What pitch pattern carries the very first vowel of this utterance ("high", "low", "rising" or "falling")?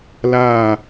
falling